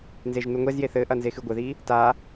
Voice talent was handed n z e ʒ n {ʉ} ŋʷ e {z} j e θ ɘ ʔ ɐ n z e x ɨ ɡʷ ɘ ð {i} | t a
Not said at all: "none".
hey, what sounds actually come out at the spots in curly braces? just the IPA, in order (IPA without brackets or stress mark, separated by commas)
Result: u, z, i